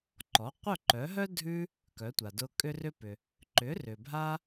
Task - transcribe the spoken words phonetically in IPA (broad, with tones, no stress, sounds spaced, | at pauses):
ǃ ɔ˩˥ qʷ œ˥˩ ǃ œ˩˥ ɦ œ˥ dʱ ʉ˧ | k œ˩˥ tʷ a˩ d ʊ˧ kʼ ʏ˥ r ʏ˥ p ʏ˩ | ǃ ʏ˩˥ r ʏ˩ bʱ a˧